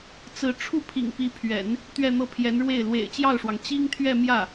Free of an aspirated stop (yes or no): no